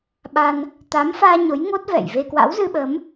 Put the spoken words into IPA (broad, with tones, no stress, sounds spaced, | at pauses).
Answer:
ɓ a˧ n | t̪ a˨˦ m f aː˧ ɲ o˨˦ j ŋ o˦˥ t̚ v ɛ̰˧˨ j v e˧ k w a̰˧˥ w z ɨ˧ ɓ ə˨˦ m